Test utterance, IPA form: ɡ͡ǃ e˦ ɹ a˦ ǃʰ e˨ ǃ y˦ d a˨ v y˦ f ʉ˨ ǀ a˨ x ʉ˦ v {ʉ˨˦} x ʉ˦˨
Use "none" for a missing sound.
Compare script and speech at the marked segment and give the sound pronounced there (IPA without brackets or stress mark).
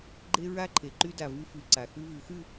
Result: ʉ˨˦